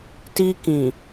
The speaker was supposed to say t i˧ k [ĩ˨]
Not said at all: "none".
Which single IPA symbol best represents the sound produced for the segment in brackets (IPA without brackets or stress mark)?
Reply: ĩ˨